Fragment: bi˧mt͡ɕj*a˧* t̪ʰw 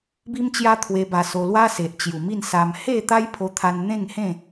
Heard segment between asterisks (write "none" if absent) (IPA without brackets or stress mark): a˧